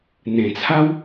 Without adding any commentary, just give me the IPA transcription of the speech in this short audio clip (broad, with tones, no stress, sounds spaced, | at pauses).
n̪ ẽ˨˩ t͡sʰ a˦ w